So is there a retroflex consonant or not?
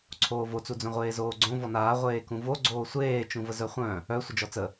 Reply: no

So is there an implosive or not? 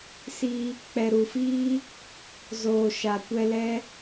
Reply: no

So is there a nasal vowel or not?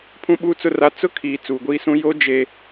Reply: yes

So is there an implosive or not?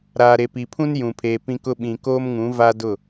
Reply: yes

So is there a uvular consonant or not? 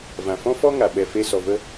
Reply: no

